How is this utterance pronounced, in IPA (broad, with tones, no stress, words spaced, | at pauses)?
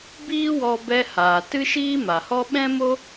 biː˦wɔ˧bɛ˧haː˨ tɨ˦ʃiː˦ma˨hɔ˦ ɓɛ̃˦mo˦